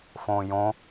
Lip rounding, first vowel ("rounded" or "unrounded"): rounded